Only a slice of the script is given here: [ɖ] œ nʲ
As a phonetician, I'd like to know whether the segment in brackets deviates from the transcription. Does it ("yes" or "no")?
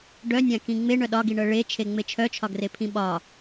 no